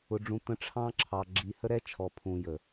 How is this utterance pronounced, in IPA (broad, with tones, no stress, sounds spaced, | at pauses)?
ʊ˨ ɖ͡ʐ ũ˨ t̪ ə̃˨ ʈ͡ʂʰ ɑ̃˦ ǁʰ ɑ˨ ɡ͡ǁ i˨ h ə˦ ɾ ɛ˦ t͡ʃʰ ɔ˨ pʰ ũ˨ j ə˨